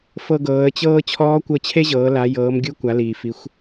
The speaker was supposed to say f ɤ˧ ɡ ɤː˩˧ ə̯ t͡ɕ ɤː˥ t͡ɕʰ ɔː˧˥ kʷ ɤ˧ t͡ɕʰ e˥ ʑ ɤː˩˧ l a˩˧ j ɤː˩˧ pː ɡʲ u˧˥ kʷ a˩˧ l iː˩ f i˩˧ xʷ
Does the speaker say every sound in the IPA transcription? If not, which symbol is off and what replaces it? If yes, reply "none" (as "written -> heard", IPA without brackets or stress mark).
pː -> m